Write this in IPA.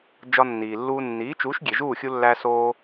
d͡ʒɒ˧nːiː˩lːuː˧ nːiː˩˥t͡ʃuː˩˥ʃ ɡʲe˩ʒuː˥˩xʲu˧lːæ˧ soː˧

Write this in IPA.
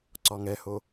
ǀɒŋɛho

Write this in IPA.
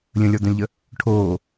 lʲə̃lʲɔd̪œ̃lʲʎə | ʈʰoː

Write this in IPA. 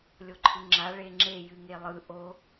lʲoǃʰɯŋ͡ǁa ɭeŋ͡ǁe jɨŋelˠɯ ʔo

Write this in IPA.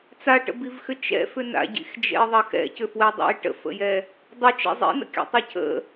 t͡saʈə̰bivxʏ t͡ʃɛ̰fʏ na̰ɟḭxd͡ʒɛ̰i̯ðˤɐ xɛ̰cʏfwɛdˤɛ̰i̯ ʈə̰fə̰jɛ | dˤʏt͡ʃɛ̰ zˤḭnə̰kʲa̰tˤɐ cʰə̰

